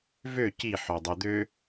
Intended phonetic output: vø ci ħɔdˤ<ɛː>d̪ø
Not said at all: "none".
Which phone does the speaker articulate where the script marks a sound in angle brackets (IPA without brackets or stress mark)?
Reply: ɛ